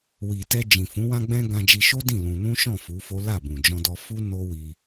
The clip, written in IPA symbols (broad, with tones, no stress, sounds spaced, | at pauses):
w i˨ t ɛ˧ d͡ʒ ĩ˨ f ũ˨˦ w ã˧ ɡ͡b ɛ̃˧ ɡ ã˧ d͡ʒ i˧ ʃ o˦ d ĩ˦˨ l ũ˧ n ũ˦ ʃ ɔ̃˦˨ f u˨˦ f o˦ l a˦˨ b ũ˨ d͡ʒ ɔ̃˧ d ɔ˧ f u˦ n o˦ w i˧